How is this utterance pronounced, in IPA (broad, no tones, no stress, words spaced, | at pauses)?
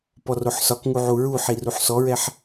pɔroħsɒkŋu ʕuɹuħi ruħsɔɹɛħ